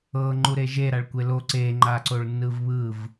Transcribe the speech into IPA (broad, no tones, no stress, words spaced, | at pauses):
ɤ ŋ͡ǃuɾeʒe ɾaɭkʷelo ǀe ŋ͡ǃaǀoɭnːɯvβɯv